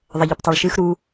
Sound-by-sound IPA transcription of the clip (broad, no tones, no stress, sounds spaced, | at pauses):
ðˤ ɐ ʎ ɵ p tˤ o ɭ ʃ ɨ x ɾ u